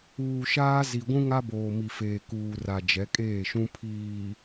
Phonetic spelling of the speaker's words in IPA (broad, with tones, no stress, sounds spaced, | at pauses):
uː˨ ʃ aː˦ z i˨ ɡʷ ũ˦ ŋ a˦ b oː˨ m i˨ f eː˨ k uː˨ r a˨ d͡ʒ ɛ˨˦ kʼ eː˦˨ ʃ ũ˦ pʰ iː˨